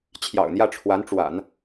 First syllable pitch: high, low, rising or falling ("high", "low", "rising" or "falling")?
low